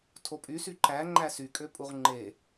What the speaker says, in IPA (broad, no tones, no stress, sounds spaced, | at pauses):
tʰ o pʼ y s y ǃ æ ŋ͡ǃ æ s y kʼ ø pʼ u ʁ ŋ͡ǃ e